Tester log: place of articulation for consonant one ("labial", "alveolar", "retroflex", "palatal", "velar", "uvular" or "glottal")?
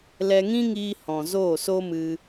alveolar